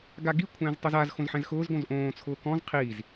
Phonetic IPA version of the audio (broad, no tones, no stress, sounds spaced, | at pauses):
ɡ a ɡ i kʷʰ ɛ̃ː z tˤ ʊ z a z x õ z ħ ɛ̃ z x ʊː z ɡ õ z ʔ õː t͡sʰ ʊː k ɔ̃ z qʰ iː z